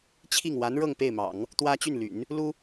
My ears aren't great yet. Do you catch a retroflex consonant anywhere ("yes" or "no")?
yes